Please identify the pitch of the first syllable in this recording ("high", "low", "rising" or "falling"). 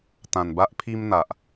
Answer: low